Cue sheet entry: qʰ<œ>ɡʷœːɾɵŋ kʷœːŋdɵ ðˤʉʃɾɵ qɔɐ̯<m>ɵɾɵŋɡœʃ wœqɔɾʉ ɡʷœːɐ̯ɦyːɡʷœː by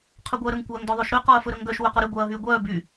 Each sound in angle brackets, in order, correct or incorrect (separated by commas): correct, incorrect